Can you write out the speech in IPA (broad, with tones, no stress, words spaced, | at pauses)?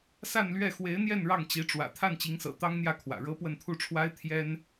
sa˥˧nlɥɛ˥˩ xwe˧˥ɪ̯n̪jɛ˥˧n ɻɑ˥˩ŋ t͡ɕi˧˥ʈ͡ʂwä̰˨˩ t̪ʰa˥˩nt͡ɕi˧˥ŋsɤ̰˨˩ t̪ɑ˥ŋn̪jä˥˩kʰwä̰˨˩ ɻɤ˥pwə˥˧nt̪ʰu˥˩ʈ͡ʂʰwa˥ɪ̯ t̪ʰjɛ˥n